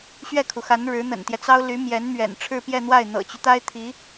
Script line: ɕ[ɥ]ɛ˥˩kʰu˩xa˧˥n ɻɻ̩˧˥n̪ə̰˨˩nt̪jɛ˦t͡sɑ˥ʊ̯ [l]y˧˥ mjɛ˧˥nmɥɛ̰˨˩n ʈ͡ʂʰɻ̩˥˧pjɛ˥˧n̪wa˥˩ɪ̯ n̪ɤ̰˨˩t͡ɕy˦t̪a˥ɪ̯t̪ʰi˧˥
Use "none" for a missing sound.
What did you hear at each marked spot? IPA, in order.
ɥ, l

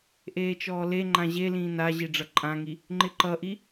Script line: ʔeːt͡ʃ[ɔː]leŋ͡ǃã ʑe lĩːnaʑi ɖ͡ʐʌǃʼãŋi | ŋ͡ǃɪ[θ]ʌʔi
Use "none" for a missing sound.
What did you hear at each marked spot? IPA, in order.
ɔː, ǃ

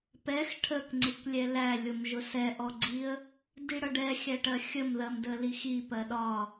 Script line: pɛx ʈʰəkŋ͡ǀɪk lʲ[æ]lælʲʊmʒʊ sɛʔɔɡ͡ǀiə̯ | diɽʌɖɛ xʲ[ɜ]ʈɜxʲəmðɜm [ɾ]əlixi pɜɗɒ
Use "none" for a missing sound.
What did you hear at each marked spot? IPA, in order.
ɛ, æ, d

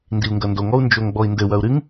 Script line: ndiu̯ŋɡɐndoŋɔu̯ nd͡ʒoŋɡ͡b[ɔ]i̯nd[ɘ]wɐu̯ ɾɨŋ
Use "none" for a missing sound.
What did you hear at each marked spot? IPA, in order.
ɔ, ɘ

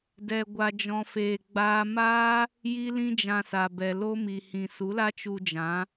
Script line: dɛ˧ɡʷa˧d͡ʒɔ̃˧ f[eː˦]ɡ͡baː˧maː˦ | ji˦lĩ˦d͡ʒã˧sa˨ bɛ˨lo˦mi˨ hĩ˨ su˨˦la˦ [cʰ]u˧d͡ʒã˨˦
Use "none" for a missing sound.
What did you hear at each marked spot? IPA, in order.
eː˨, t͡ʃ

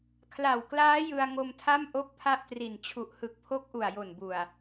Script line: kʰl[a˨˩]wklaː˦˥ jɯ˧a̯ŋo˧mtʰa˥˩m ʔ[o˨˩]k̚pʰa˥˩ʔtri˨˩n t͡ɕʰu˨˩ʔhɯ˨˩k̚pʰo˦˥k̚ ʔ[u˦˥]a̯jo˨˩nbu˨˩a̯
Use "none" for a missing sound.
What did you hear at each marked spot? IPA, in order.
a˨˩, o˥˩, u˨˩

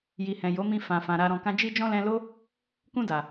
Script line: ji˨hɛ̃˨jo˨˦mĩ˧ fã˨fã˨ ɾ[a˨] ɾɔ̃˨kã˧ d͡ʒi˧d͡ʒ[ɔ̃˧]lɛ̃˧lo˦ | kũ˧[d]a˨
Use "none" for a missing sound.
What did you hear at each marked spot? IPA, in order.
a˨, ɔ̃˧, d

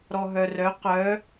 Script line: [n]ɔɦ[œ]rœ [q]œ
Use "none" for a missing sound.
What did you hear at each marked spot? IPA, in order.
ɾ, œ, q

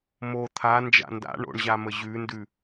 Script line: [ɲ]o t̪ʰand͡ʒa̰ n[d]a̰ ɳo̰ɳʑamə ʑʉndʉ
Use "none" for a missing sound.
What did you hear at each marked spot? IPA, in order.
m, d

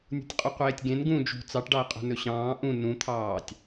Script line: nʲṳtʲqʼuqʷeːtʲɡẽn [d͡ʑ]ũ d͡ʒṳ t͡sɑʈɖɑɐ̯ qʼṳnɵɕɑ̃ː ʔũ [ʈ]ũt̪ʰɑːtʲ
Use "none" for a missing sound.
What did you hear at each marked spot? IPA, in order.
ɡ, n

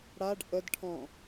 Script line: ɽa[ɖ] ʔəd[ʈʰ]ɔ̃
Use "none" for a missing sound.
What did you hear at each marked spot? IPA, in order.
ɖ, ʈʰ

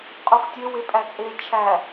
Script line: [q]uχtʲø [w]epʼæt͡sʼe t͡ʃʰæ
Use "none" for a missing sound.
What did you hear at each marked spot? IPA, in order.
qʼ, w

